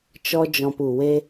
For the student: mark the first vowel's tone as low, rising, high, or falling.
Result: high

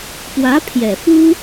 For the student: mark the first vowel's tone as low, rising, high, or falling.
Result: rising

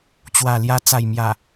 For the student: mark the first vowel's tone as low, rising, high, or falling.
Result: low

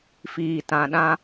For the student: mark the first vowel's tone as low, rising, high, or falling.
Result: low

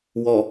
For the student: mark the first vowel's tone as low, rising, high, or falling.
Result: low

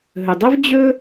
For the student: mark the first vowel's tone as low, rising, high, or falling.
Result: low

